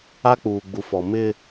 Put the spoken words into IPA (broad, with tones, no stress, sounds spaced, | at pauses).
a˦ k͡p uː˨ ɡ͡b u˨ f ɔ˨ m ɪ˦